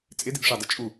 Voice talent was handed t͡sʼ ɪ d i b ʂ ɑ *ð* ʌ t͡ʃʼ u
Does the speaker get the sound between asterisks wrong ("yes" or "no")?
yes